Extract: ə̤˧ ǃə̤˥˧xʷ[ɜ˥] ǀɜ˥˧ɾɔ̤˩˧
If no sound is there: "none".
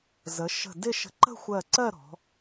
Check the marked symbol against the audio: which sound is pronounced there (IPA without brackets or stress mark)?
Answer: ɜ˧˩